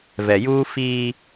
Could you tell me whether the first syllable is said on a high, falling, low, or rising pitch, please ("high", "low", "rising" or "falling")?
low